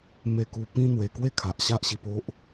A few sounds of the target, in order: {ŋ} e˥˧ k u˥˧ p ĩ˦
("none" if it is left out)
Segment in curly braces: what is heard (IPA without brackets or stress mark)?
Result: m